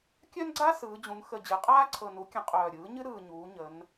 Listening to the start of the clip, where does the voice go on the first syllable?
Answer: high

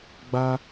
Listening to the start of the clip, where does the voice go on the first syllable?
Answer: high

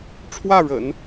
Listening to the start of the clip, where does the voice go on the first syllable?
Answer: falling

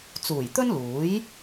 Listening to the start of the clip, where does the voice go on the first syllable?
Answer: low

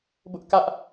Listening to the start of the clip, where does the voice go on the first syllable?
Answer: high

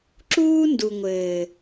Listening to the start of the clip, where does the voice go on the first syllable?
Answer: high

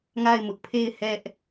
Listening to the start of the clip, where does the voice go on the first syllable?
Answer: falling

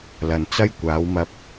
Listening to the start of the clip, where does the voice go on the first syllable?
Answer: low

